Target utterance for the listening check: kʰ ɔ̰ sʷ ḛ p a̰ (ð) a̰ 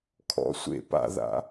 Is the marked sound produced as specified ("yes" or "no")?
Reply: yes